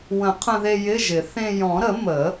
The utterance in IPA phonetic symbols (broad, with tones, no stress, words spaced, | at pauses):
wə̃˨˩˦ qʰə̃˧ðe˧ jɪ˧˥˧ʒɪ˨˩˦ θẽ˧ jɔ̃˨˩˦ɾə˨˩˦ mə˨˩˦